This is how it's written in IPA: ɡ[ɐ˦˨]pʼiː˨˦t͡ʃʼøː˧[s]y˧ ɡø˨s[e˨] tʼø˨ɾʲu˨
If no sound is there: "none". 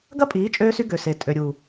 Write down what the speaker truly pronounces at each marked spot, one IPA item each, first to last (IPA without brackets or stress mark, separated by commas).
ɐ˦, s, e˨